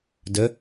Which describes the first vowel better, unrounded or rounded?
unrounded